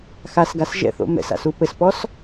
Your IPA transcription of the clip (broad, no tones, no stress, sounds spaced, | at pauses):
x a s ɡ a s ʒ ɛ̰ θ o̰ m ɛ̰ s a̰ s u p ɘ s p ɔ s